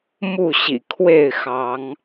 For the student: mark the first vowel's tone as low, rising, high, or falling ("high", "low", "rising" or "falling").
falling